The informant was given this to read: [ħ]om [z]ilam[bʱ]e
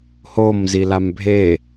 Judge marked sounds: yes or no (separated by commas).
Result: no, yes, yes